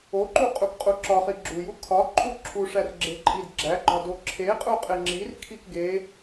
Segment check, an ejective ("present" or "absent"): present